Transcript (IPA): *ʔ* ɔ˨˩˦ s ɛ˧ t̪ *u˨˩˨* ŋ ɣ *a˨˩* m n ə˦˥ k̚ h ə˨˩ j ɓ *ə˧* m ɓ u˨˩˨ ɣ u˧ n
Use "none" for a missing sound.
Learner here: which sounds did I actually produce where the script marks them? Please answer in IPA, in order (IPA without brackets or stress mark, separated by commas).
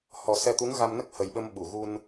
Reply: h, u˧˥, a˧, ə˧